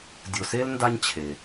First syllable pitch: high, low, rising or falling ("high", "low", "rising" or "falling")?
low